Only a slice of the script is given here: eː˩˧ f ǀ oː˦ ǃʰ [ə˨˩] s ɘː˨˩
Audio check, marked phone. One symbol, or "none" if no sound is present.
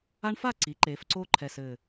ɛ˨˩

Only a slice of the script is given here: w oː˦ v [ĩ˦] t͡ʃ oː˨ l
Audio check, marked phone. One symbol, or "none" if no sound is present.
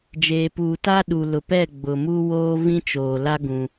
ĩ˦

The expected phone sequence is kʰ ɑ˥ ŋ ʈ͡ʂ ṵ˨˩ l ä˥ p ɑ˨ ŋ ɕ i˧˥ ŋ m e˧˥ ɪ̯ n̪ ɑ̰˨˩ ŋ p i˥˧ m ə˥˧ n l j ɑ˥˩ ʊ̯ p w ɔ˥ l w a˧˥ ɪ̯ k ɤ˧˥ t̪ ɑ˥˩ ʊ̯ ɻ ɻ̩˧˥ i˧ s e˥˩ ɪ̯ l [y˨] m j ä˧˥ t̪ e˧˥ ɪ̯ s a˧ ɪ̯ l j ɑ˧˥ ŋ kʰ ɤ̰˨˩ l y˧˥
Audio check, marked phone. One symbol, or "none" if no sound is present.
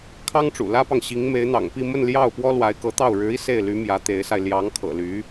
y˧˥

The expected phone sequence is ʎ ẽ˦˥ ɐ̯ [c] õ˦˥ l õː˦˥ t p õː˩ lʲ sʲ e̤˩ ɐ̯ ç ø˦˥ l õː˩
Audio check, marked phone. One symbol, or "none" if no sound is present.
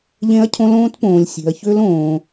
cʰ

